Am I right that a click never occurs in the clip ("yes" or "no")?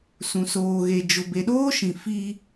yes